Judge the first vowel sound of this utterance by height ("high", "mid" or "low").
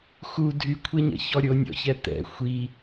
high